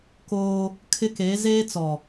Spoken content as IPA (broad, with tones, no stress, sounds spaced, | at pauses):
k oː˦ | kʰ ɪ˦ k e˨˦ z eː˦ t͡s ɔ˨